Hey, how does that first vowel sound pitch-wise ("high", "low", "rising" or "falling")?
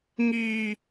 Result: high